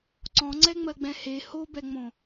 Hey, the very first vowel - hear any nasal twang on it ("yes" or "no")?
yes